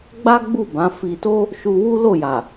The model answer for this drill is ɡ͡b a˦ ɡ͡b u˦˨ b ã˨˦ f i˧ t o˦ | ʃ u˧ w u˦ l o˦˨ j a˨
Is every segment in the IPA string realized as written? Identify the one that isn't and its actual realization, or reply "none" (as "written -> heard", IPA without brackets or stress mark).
none